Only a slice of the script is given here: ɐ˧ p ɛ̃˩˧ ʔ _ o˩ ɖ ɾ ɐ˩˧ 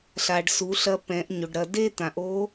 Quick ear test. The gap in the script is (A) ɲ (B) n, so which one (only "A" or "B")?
A